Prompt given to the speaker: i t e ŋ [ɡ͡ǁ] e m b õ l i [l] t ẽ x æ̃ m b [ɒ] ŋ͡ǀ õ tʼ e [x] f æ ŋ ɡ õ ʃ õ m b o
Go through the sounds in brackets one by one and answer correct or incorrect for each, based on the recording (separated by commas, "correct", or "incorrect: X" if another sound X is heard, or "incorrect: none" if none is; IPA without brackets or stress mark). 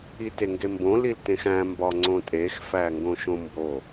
incorrect: ɡ, correct, correct, correct